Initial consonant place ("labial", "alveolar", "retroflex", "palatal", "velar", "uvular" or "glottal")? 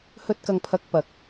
glottal